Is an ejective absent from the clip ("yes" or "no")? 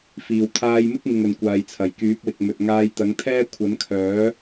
yes